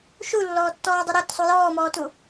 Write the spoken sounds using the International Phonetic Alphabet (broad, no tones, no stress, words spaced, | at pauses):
ʃulːɔːtːɔːdˤu ɾɤɾʊtsˤu jɔːmɔːtu